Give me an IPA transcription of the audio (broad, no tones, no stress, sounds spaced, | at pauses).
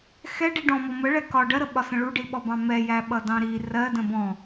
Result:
x ɛ ɖ i ɖ ɔ̃ m ɔ m ə ɭ ɛ k ɒ ɖ ɜ ɾ ə ɓ ɒ s ə̃ ɭ u ɖ i ɓ ɔ b ɑ̃ m ɛ j æ ɓ ʌ d ɑ̃ ɾ i r ɜ d ə̃ b ɔ̃